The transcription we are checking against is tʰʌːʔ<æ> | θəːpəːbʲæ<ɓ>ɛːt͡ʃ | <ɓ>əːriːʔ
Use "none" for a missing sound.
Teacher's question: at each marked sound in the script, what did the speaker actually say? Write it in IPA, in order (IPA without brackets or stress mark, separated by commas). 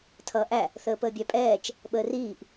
æ, pʼ, ɓ